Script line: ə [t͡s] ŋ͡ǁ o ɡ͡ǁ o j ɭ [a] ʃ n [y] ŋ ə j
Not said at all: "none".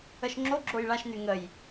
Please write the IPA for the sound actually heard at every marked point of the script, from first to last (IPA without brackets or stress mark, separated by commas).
ʃ, a, y